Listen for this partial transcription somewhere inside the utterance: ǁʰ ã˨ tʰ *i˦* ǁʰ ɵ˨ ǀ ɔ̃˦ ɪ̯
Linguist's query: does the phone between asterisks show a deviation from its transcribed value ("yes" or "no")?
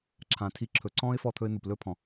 yes